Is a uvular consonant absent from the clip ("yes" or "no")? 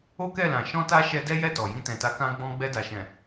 yes